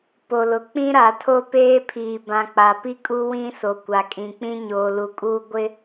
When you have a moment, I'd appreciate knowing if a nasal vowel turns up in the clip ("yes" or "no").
yes